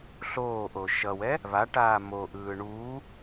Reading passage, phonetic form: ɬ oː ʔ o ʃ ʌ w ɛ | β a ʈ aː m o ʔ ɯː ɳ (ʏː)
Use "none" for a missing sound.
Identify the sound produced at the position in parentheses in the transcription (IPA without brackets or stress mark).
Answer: uː